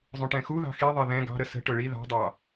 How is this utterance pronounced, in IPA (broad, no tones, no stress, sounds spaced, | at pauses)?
zˤ ũ ʈ ɛ̃ x u ð ɑ̤ x i ðˤ ɪ ð ɛ̃ ɡ ɑ̤ ɾ ə s ə̤ ʈ ʊ ɭ i ð ɑ̤ dˤ ɑ